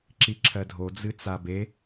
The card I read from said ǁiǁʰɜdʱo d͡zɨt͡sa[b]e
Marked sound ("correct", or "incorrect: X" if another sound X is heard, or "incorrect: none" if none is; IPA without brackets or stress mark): correct